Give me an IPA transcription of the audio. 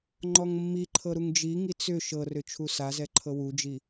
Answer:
ŋ͡ǃ ɔ ŋ mː i ǃʰ ɤ ɾ u ŋ d͡ʒ i ŋ i t͡s ʏ ʃ ɤ r ʏ t͡ʃʰ u s a z ɛ ǃʰ ɤ w u d͡ʒ i

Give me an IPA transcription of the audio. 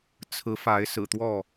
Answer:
t͡sʰ ɹ̩˨˦ f a˨˦ ɪ̯ s ɹ̩˨˩ t̪ w ɔ˥˨

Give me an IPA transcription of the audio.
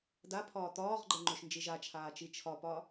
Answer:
d a pʰ ɒː t̪ ɒː ʁ ɡ͡ǃ ɛ ŋ͡ǃ ø ʃ n d͡ʒ i ʒ a t͡ʃʰ aː t͡ʃ i t͡ʃʰ ɒ p ɒ

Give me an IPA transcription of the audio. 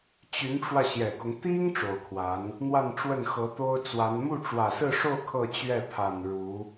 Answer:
t͡ɕ y˧˥ n ʈ͡ʂ w ä˧ ɕ j ɛ˨˩ k ʊ˦ ŋ t̪ i˥ ŋ ʈ͡ʂ o˨˩ ʊ̯ kʰ w a˧˥ n | n̪ w a˥˧ n ʈ͡ʂ w ə˥˩ n x ɤ˧˥ t̪ o˥ ʊ̯ t͡s w a˧˥ n m u˥˩ ʈ͡ʂ w ä˨˩ s ɹ̩˥˧ ʂ o˥˧ ʊ̯ kʰ ɤ˥˧ t͡ɕ ɥ ɛ˥˩ pʰ a˨˩ n ɻ u˧˥

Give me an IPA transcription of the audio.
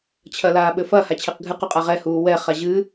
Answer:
t͡ɕʰ ɐ l aː ɓ ɘ f ɐ h a t͡ɕʰ e q ɡʱ ɨ q u qʼ a ʁ ɛ h uː w ɛ χ a ʑ ɨ

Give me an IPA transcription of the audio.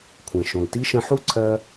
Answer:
kʷʰ ɛ̃˩ ʃ õ˩ l t i˥ ʃ ə̃˧ ħ u˥ ǀʰ ɜ˧

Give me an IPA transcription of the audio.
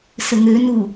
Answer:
s ə ŋ ø n u

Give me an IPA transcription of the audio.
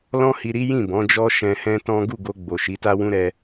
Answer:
l ɔ̃˦ h i˧ ɾ i˦ j ĩ˦˨ b ɔ̃˨˦ d͡ʒ ɔ˦ ʃ ɛ̃˧ h ɛ̃˦ t ɔ̃˦ ɡ u˦˨ ɡ o˧ ɡ͡b o˨ ʃ i˨˦ t a˦ w ũ˦ ɾ ɛ˧

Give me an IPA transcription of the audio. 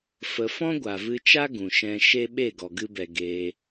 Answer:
f ə˧ f ɔ̃˦ ɡʷ a˨ v ɨ˧ t͡ʃ a˦ ɡ ũ˨ ʃ ɛ̃˧ ʃ e˦ ɓ e˦˨ ɡ ɔ˨ ɡ ɨ˧ b ɛ˨ ɡ eː˧

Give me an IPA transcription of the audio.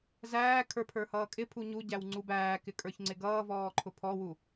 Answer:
z æː kʰ ə˞ pʰ ə˞ h ʌː kʼ ɪ pʰ u ɲ u ɟ æ w ŋ͡ǀ u b æː k ɪ kʼ ə˞ ç ŋ͡ǀ ɪ ɡ ʌː v ɔː ǃʰ ʊ pʰ ɔ w u

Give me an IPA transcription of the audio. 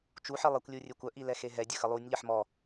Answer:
t͡ʃ u ħ i lˠ ɛ kʷ lʲ u rʲ e kʷ œ ʔ i l ɛ x e ɦ ɛ dʲ ə x ə lˠ u nʲ ʎ ə ħ m ɔ

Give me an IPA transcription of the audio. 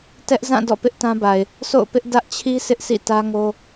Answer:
t ɛ˦ ʔ z ã˦˨ d ɔ̰˦˨ p ɪ˦ ʔ t ã˦ b a˨ ɪ̯ | s o̰˦˨ ʊ̯ p ɪ˦ ʔ d ä˦ ʔ t͡ɕʰ i˦ sʰ ɪ˦ ʔ s ḭ˦˨ t ä˦ ŋ o˦

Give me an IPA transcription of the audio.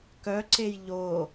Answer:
k œ ǀ e j ʎ o

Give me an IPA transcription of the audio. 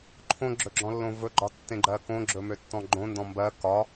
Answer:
ǃʰ õ ɡ͡ǁ ɵ ɡ͡ǁ ɔ̃ lː õ v ɵ ɡ͡ǃ ɒ tː ẽ ɡ͡ǃ ɜ k õ ɡ͡ǁ ɵ m ø tː ɔ̃ ɡ͡ǃ õ n d ɔ̃ m b ɜ k ɒ

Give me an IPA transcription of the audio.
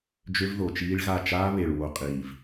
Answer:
d͡ʒ ø˦ v ð o˨ t͡ʃ iː˦ ɭ ɣ a˦˨ t͡ʃ aː˦ β e˨ ɭ w o˨ qʼ iː˨ v

